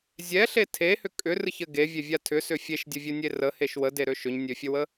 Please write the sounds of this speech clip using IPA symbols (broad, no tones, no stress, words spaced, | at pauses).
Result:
zʲɛɬe tʰehʏ kʼʏrɨçɘ ɡevʲevʲa tʰʏsʏ fʲeʃdʲəvʲɘnʲe rəheʃ wədeɾø ʃʏɲnʲøfʲəwə